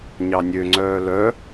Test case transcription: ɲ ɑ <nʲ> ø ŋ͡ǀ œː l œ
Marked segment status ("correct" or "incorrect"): correct